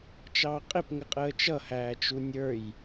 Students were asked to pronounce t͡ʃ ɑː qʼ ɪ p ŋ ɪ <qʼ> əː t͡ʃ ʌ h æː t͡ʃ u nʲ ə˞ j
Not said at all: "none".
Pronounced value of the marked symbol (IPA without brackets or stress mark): qʼ